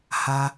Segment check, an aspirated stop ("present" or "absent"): absent